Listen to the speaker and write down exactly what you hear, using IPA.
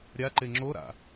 ɾʲa ǃeŋ͡ǁoɾa̰

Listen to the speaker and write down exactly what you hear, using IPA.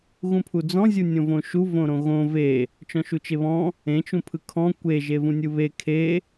ɣũpʰud͡zɔ̃ zʲunʲõvõʃu võɾõɣõ ve | t͡ʃɔ̃ʃut͡ʃeβɔ̃ | ẽ t͡ʃũpʰɯkʰɔ̃ kʷe ʒevũnʲɯβe kʰe

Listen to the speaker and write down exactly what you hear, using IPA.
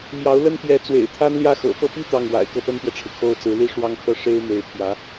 mjɑ˧˥ʊ̯lə˥n pjɛ˧˥t͡swḛ˨˩ɪ̯ t̪ʰa˥nljä˥xɤ̰˨˩ pɤ˥˧pi˥˧ t̪ɑ˥˩ŋwa̰˨˩ɪ̯ kɤ˥pə˥nt̪jɛ˨ʈ͡ʂʰɻ̩˩ kʰo˥ʊ̯ t͡sɹ̩˧˥li˥ ʂwɑ˥ŋkʰɤ˥˩ ʂe˥ɪ̯ me˧˥ɪ̯pʰjä˧˥

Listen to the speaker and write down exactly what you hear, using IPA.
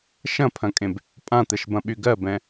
ʃɐ̃pʰɐ̃kʼẽb | pʼãt̪ɛʃbɐ̃ɓy ɡɜbɛ̃

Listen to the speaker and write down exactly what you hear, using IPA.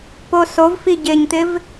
posovfi ɟɪɲt̪ɪv

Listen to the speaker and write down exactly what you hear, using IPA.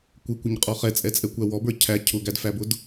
kʷɪkʷɪɲqʼɔ χɛt͡sʼɛt͡sʼɛkʷæ wɔbə˞ cʰæ cʰʊɡædfæbʊd

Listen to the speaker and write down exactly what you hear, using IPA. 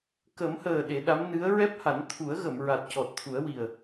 kə˨˩˦mhəː˨˩ ɗe˨˩˦ɗa˧˥m nɨ˧˥ə̯ ɹɛ˦˥p̚ha˨˩˦n t̪ʰu˨˩˦ə̯ɣə˨˩˨mɹa˨˩t̚ cɔ˨˩t̚t̪ʰu˨˩˦ə̯ wi˨˩ə̯

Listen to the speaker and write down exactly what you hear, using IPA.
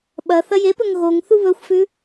ɓɐ θɐjepɵŋ ɣoŋ θuβɵxʷfʉ

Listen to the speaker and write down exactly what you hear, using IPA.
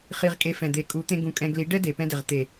χi˧ʁkʼe˧ fɛ̃˨d̪e˨ kʼu˨˦t̪ẽ˧ ɡũ˧kʼɛ̃˧ ɡli˨˦ɖɛ˦ de˨pɛ̃˧dɪ˨ʁ t̪e˨

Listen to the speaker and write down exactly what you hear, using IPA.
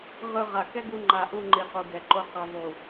ʁɯ˧ ʁa˨ kɛ˦ɡu˧ ŋ͡ǃa˨ʔu˧ ŋ͡ǃi˨qu˨ɡɛ˨ ǃo˧qi˨ ðˤu˨

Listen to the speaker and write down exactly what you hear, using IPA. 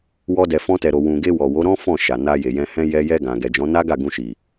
wɔ˧dɛ˨ fɔ̃˧tɛ˨ɾo˨ wũ˨ɡe˧wɔ˨wo˨˦ ɾɔ̃˦fɔ̃˦˨ ʃa˨na˧ je˨jɛ̃˧ hɛ̃˧ jɛ˦ jɛ˧ ɡã˨ɡɛ˨d͡ʒɔ̃˨˦ na˦ɡa˦˨ ɡũ˧ʃi˨

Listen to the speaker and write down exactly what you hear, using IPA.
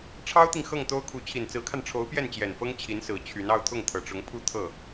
ʈ͡ʂʰɑ˥ʊ̯t̪i˨ŋ xɤ˥˩ŋt̪o˥ʊ̯kʰu˧˥ t͡ɕʰi˨˩nt͡sɹ̩˧˥kʰa˧nʈ͡ʂʰo˧˥ʊ̯ pjɛ˥˩nt͡ɕjɛ˨˩nfɤ˥ŋ t͡ɕʰi˧˥nsɹ̩˨˩ t͡ɕʰy˧˥nɑ˥ʊ̯ t̪ʰʊ˥˩ŋt̪ʰɤ˨˩ʈ͡ʂʊ˧˥ŋ pʰu˥˧ t̪ʰɤ˥˩

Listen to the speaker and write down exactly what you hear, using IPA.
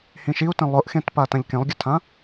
hĩʃiu̯tẽ lˠʊʔxẽtpa tãʎkẽlˠɡʲʊtʰã

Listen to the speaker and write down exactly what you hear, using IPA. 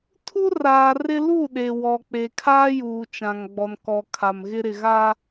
tʰu˦raː˨rɪ˦ lu˦˨ɗe˨ wɔ˨k͡pe˨ kʰaː˦juː˨t͡ʃã˨ŋɡ͡bɔ˨n kɔ˨kʰa˨mɣɪ˦ ɾɪ˨ɣa˦

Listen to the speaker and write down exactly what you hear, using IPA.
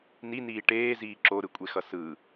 niniː ʈeːziː ǁoɾɯkʷʼexʌ sɯ

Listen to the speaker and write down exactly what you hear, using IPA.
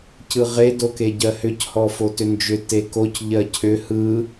cɯʁe dokeɟɜhʏc hɔfotʏnd͡ʒʏ tekoc ʎɜcʰʏ hɯ

